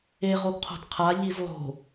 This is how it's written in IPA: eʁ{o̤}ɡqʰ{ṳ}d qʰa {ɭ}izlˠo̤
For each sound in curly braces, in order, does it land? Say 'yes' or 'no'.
no, no, no

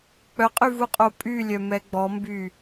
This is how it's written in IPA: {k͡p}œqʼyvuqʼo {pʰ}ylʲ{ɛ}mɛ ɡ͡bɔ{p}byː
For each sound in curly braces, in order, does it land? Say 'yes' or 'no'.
yes, no, no, no

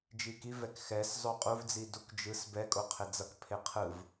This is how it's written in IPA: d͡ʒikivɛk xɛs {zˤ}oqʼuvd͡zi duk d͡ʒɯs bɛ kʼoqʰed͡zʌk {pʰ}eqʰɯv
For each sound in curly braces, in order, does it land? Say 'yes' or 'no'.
yes, yes

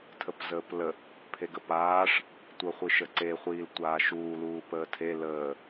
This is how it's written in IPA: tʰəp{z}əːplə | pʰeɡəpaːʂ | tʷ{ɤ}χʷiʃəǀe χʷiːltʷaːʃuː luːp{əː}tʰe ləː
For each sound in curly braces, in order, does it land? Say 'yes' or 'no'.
yes, yes, yes

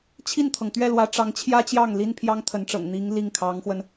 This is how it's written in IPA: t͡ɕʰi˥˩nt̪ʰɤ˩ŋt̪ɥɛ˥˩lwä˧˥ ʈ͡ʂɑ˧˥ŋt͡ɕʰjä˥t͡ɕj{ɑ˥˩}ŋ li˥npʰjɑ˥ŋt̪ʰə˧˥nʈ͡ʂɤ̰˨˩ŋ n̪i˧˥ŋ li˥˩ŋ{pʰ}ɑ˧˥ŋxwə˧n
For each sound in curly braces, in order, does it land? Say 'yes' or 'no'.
yes, no

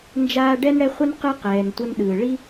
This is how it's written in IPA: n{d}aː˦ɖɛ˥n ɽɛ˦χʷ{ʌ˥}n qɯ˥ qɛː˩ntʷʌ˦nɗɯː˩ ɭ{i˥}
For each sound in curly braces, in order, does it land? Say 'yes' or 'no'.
no, yes, yes

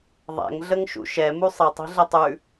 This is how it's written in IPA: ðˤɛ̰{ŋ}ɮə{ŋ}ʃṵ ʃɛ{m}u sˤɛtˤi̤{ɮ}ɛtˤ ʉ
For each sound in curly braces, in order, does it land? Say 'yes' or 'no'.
yes, yes, yes, yes

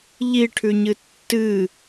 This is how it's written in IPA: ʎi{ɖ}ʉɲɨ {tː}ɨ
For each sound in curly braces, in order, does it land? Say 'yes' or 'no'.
no, yes

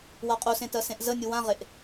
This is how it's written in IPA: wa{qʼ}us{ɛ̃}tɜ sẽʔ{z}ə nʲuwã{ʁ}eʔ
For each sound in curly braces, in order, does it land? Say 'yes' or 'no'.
yes, no, yes, yes

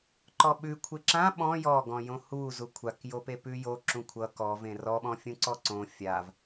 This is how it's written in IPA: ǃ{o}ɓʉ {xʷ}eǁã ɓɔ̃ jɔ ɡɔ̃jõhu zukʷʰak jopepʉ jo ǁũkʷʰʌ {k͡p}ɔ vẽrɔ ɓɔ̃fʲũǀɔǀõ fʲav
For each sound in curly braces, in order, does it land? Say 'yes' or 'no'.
no, no, no

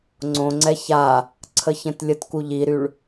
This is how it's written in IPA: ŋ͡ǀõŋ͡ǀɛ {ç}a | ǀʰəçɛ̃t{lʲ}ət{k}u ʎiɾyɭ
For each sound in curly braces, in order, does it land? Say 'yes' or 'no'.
yes, yes, yes

